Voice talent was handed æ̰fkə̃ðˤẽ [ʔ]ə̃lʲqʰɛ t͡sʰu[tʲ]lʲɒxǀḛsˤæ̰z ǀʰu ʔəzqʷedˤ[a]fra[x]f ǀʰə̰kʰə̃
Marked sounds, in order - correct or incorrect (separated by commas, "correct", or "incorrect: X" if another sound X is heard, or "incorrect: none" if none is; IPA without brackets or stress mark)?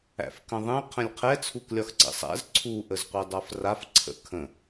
incorrect: qʰ, incorrect: k, correct, incorrect: none